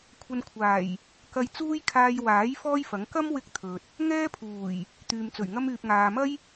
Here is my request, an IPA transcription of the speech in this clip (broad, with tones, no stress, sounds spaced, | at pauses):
kʷʰ ɐ˧ n kʷʰ aː˨˩ j | k ɐ˧ j t͡s uː˥ j kʰ aː˧ j w aː˨˥ j f ɔː˥ j f ɐ˨˥ ŋ k ɐ˥ m w ɪ˧ k̚ t̪ʰ ɵ˨ t̚ | ŋ ɛː˥ pʰ uː˨˩ j | t̪ yː˨ m t͡s ɵ˨˩ ɥ ŋ ɐ˥ m yː˨ p̚ ŋ aː˨ m ɐ˥ j